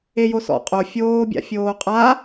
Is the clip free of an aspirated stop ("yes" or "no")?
yes